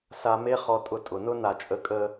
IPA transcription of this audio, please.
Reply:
s a˧ m e˦ χ ɔ˧ tʼ ʊ˧ tʼ ʊ˨ n ʊ˦ n a˧ t͡ʃʼ ə˧ kʼ ə˦

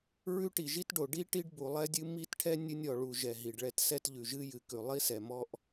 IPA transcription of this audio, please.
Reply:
ɹ ʉ˥ ʈ i˩ ʒ i˥ t ɖ o˩ ɖ i˥ ʈ i˥ ɖ b u˩ lˠ ɛ˥ dʲ ɨ˥ m i˥ t ʈʰ ɛ˥ nʲ ɨ˥ nʲ ɔ˩ ɭ u˩ ʒ ɛ˩ ɦ i˩ ɖ ɭ ɛ˥ t s ɛ˥ t ʎ ʉ˩ ʒ ɨ˥ j ɨ˩ k ʉ˩ lˠ i˥ s ɛ˩ m ɔ˥ ʔ

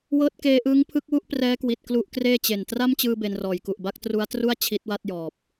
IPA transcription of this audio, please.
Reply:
w ɤː˦˥ t̚ k eː˧ ʔ ɯː˦˥ ŋ pʰ ɯ˦˥ k̚ w u˥˩ ʔ p r ɛː˦˥ k w i˨˩ t̚ k l u˦˥ ʔ k r eː˥˩ t͡ɕ e˨˩ n t r a˥˩ m t͡ɕ ɯː˧ b e˧ n r ɔː˨˩ j k u˨˩ ʔ b a˥˩ k̚ t r u˦˥ a̯ t r u˥˩ a̯ t͡ɕʰ i˦˥ t̚ w a˥˩ t̚ j ɔː˨˩ p̚

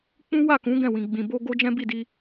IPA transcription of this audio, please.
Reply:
k͡p ũ˦ w a˦˨ k ũ˨˦ ɡ ɛ̃˦˨ w ĩ˨ ɡ͡b ĩ˨ b o˧ ɡ o˦ d͡ʒ ɛ̃˦ b i˦˨ d i˧

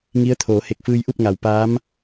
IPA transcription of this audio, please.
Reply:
ŋ i˧˥ ə̯ t̪ʰ oː˩˧ h e˧˩ k̚ f ɯː˧ j ʔ u˥˨ p̚ ŋ a˩ w p aː˧˥ m

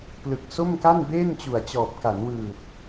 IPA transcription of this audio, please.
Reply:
p l ɯ˨˩ k̚ s o˥˩ m k a˥˩ n b eː˥˩ n t͡ɕ u˨˩ a̯ t͡ɕ ɔː˨˩ p̚ k a˩˦ n w ɯː˨˩ t̚

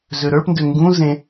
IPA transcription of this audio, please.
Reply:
z ø ɾ ə˞ p n d ø ŋ ɡ ũ z ẽ

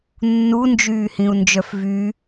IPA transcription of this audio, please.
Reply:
nː u n d͡ʒ yː h ĩ u̯ n d͡ʒ œ f v y

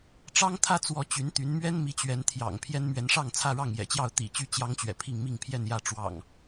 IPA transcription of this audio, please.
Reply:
ʈ͡ʂ ɑ˦ ŋ t̪ʰ ä˦ t͡s w ɔ˨˦ t͡ɕ y˨˦ n t̪ y˨˦ n m ɥ ɛ˦ n m i˨˦ t͡ɕ ɥ ɛ˨˦ n t̪ʰ j ɑ̰˨˩ ŋ pʰ j ɛ˦ n m ɥ ɛ˨˦ n ʂ ɑ˥˨ ŋ t͡sʰ ä˥˨ ɻ ɑ˥˨ ŋ j ɛ̰˨˩ t͡ɕ j ɑ˥˨ ʊ̯ t̪ ḭ˨˩ t͡ɕ y˥˨ t͡ɕ j ɑ˦ ŋ t͡ɕ ɥ ɛ̰˨˩ pʰ i˥˨ ŋ m i˥˨ ŋ pʰ j ɛ˥˨ n j ä˥˨ ʈ͡ʂ w ɑ̰˨˩ ŋ

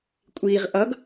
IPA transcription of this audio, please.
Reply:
kʷʼ iː ʁ ʔ ʌ ɡ

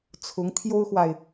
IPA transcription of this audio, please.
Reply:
t͡sʰ ʊ˧˥ ŋ t̪ʰ j o˥ ʊ̯ x w a˨ ɪ̯

